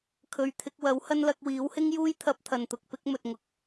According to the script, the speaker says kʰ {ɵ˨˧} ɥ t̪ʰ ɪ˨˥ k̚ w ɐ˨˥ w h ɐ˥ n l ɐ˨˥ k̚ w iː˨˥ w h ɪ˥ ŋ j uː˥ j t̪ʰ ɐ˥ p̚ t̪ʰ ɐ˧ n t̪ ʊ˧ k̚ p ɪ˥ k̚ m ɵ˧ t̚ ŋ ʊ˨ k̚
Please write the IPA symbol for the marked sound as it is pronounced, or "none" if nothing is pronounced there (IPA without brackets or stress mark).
ɵ˨˧